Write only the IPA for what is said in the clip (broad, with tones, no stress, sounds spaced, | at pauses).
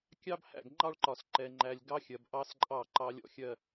kʲ ɑ˦ b h æ̰˦˨ ɡ ŋ͡ǃ ɑ˦ ɭ ǃ ɒ˨ s ǃ ɛ˨ ŋ͡ǃ æ˨ lʲ ɡ ɑ˦ xʲ ɜ˨ b ʔ ɑ˦ s ǃʼ ɑ˦˨ ǃ ɑ˦ lʲ ɔ̰˦ xʲ ɜ˦